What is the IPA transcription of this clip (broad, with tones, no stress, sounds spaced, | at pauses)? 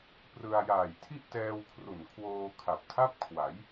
p r ɯ˧ a̯ j aː˨˩ j tʰ i˥˩ ʔ t ɛː˧ w kʰ r u˨˩ n kʰ w oː˧ kʰ a˨˩ p̚ tʰ a˥˩ p̚ kʰ w a˩˦ j